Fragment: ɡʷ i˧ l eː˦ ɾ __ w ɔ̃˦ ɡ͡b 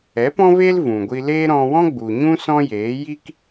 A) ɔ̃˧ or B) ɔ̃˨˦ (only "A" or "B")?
A